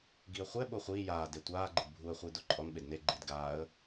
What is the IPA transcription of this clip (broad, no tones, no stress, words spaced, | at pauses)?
ɡiə̯χʷɛ ɓoχʷiː jaː detʷaː ɡ͡ǃɨdbʱuə̯ χʷiːdoǃʼɔn ɓedne ɡ͡ǃid ɡaːə̯